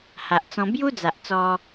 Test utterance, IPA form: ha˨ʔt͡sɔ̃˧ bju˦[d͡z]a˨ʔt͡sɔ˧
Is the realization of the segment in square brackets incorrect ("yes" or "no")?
no